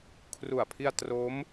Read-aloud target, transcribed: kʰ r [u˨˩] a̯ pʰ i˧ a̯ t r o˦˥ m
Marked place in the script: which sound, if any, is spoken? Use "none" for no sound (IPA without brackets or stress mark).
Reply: u˨˩